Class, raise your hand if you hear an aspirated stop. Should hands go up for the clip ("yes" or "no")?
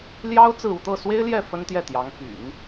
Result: no